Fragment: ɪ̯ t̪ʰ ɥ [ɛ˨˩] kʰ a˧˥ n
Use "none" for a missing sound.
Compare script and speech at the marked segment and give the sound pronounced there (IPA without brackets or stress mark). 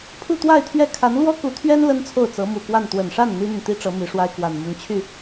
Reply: ɛ˥˩